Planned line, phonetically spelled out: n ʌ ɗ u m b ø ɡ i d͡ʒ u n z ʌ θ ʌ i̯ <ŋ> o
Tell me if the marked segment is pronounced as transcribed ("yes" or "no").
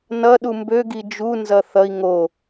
yes